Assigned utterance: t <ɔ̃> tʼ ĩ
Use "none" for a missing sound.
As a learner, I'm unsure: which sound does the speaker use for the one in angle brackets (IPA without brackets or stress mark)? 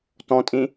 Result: ɔ̃